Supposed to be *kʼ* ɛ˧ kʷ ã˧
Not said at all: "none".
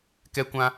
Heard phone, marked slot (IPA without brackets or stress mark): k